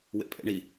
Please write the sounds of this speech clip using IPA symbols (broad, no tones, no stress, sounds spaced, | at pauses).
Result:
w ḛ pʼ ḛ ɳ i